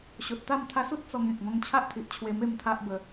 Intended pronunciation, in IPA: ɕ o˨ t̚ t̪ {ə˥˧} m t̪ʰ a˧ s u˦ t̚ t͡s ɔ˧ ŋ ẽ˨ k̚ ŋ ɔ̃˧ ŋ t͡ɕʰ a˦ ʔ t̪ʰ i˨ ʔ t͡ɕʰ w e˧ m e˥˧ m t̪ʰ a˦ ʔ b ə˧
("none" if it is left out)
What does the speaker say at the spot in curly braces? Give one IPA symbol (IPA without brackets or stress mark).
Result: a˥˧